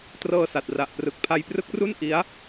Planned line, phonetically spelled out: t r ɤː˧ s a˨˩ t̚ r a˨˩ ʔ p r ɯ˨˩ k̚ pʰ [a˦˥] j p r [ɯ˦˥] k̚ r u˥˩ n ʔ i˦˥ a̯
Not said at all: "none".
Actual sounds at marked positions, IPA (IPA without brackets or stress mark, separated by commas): a˧, ɯ˦˥